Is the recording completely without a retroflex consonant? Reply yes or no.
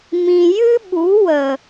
yes